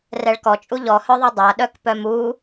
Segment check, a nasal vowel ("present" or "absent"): absent